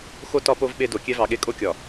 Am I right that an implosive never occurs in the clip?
no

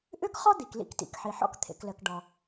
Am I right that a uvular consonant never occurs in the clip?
no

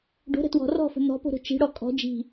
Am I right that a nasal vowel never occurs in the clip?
yes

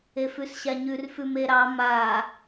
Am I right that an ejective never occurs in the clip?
yes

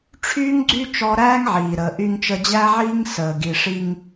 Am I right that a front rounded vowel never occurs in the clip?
no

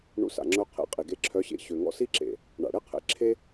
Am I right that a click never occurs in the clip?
no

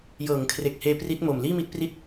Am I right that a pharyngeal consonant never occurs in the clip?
yes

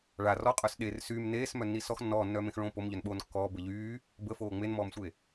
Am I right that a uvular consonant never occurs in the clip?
no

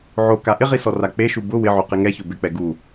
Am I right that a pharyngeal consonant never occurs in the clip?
no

